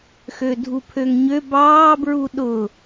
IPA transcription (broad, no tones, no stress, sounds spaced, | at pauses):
x ø dʱ u pʰ ø ŋ ɲ ø b ɑː b ɹ u ɗ ʊ